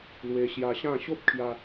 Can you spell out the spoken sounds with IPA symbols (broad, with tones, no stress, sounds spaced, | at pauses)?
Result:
l w e˧ ɕ j a˧ ɕ ã˥˧ ɕ o˦ p̚ kʰ j a˧